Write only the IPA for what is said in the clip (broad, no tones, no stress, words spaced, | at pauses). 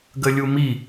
ɡəlʲumi